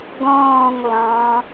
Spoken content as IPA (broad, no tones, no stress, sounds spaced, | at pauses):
ɡ ɔ̃ː ŋ lˠ ɑ̃